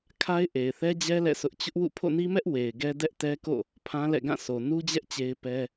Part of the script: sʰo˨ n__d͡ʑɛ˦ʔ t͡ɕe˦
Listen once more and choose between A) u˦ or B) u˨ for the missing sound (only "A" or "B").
A